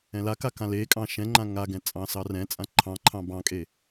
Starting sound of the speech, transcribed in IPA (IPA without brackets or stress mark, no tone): ɛ̃